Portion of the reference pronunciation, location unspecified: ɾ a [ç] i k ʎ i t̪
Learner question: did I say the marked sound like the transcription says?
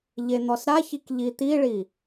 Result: yes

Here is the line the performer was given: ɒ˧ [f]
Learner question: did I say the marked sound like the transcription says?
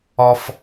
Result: yes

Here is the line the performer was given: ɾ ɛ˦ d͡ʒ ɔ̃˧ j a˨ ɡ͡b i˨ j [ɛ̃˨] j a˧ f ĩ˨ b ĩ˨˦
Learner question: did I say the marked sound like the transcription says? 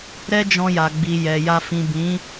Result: no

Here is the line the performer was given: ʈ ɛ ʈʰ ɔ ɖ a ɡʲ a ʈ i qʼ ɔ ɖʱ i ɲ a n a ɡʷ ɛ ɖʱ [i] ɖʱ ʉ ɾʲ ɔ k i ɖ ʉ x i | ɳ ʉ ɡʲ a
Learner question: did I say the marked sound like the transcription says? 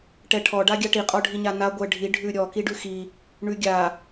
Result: yes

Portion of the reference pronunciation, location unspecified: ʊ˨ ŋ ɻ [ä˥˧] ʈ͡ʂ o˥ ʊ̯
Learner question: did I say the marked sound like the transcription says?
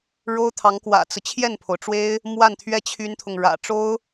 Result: no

